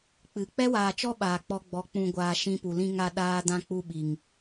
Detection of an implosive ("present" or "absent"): present